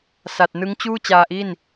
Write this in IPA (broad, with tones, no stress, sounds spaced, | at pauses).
s a˨˩ t̚ n ɯ˦˥ ŋ t͡ɕ uː˥˩ t͡ɕ aː˧ ʔ i˥˩ n